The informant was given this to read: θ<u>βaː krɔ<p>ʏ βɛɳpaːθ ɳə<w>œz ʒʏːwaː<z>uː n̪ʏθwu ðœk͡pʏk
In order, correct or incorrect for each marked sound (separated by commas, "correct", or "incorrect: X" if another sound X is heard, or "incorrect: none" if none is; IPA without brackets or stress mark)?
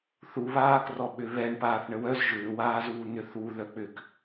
correct, incorrect: ɓ, correct, correct